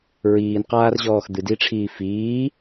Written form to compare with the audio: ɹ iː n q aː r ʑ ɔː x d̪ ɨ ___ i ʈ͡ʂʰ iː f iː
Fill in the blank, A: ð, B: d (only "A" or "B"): B